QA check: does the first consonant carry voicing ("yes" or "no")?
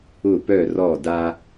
no